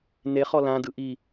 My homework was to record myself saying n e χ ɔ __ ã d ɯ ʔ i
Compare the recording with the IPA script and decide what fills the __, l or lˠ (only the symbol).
l